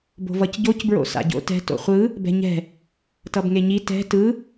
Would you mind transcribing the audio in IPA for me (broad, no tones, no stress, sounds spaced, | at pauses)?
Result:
b o̤ v ʌ c ɟ o c b ɹ o̰ s a̰ ɟ o̰ t ɛ̤ t o̰ χʷ ɯ | b ɛ̤ ɲ ɛ̤ | t ʌ b ŋ e ɲ i t ɛ̤ t ɯ